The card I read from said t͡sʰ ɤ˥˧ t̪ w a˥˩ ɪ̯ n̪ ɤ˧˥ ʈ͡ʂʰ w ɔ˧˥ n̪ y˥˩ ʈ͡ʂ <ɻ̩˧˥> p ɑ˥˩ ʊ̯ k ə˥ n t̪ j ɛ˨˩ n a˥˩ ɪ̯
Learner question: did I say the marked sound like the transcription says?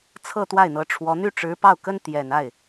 yes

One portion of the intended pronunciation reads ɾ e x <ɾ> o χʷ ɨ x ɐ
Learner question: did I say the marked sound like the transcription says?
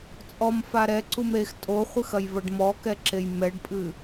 no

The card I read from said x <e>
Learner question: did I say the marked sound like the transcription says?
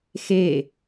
yes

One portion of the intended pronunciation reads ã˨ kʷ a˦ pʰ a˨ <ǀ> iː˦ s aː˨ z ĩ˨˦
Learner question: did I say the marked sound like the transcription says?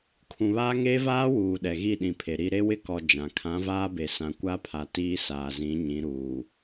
no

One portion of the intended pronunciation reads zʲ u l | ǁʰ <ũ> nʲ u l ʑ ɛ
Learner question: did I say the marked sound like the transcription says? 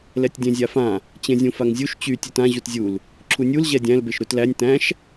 no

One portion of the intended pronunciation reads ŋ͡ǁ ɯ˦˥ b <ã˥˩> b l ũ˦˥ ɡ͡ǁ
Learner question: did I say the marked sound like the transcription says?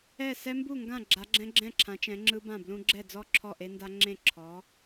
yes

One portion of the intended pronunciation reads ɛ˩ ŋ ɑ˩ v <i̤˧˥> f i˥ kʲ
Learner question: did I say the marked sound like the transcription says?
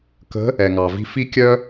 no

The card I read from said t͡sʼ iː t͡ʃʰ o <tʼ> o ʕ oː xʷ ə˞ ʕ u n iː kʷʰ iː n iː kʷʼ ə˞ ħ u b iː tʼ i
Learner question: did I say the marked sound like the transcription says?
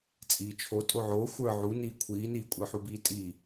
yes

